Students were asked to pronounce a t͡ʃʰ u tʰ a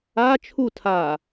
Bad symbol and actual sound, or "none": none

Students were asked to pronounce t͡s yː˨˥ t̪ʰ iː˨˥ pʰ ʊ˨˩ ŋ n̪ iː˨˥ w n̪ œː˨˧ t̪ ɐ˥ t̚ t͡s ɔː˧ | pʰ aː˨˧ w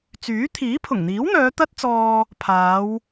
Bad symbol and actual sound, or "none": none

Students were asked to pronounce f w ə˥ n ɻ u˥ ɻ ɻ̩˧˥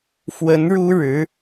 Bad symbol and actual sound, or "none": ə˥ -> ə˧˥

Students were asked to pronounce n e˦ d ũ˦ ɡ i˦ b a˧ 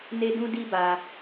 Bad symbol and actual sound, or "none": ɡ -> d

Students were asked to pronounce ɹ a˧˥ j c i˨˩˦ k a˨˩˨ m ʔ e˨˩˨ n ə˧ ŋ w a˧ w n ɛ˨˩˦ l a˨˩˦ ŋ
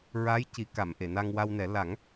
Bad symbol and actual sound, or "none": ə˧ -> a˧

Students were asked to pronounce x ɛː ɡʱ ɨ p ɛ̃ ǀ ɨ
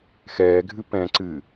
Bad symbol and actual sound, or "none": none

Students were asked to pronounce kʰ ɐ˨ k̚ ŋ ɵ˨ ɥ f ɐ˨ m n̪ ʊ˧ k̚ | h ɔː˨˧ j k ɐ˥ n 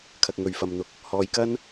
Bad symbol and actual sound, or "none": none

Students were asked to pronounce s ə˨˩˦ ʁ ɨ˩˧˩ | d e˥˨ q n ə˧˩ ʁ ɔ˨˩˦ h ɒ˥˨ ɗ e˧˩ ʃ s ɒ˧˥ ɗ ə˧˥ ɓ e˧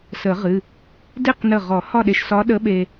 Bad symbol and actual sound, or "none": none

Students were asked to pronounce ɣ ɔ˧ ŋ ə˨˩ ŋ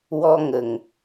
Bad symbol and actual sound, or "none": ɣ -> w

